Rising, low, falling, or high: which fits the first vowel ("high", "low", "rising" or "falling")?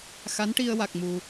rising